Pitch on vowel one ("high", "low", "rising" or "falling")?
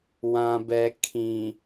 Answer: low